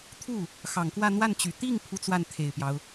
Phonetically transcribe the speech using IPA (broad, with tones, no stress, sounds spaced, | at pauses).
t̪ʰ u˥˩ | x ɑ˨˩ ŋ k w ä˥˧ n̪ w a˥˩ n t͡ɕ y˨˩ t̪ i˥˩ ŋ pʰ u˥ t͡s w a˥˩ n t̪ʰ e˨˩ ɪ̯ p j ɑ˦ ʊ̯